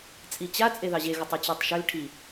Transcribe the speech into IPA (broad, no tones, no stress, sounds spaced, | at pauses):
t͡sʼ i t͡ɕ a t͡sʼ e ð ɑ ʑ e ɣ ə tˤ e t͡ɕ ɑ tˤ ʃ ʏ l ʈʰ i